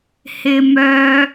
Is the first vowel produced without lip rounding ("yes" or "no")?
yes